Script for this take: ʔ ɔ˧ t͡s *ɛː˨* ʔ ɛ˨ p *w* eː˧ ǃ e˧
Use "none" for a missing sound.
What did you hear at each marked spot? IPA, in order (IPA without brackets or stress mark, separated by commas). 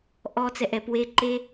ɛ˨, w